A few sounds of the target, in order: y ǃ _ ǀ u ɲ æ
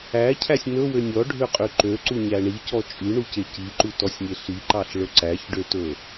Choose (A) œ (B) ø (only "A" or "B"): B